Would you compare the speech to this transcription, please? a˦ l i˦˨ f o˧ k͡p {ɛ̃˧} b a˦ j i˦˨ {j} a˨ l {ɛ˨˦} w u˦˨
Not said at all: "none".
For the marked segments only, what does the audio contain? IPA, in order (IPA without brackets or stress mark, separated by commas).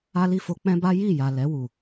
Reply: ɛ̃˦, j, ɛ˨˦